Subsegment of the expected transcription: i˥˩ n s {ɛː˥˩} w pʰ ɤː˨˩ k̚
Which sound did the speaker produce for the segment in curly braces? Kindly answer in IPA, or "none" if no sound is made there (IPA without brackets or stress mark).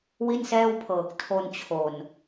ɛː˥˩